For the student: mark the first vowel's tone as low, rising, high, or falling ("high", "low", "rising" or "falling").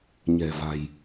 low